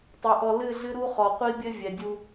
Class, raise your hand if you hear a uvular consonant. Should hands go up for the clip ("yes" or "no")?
yes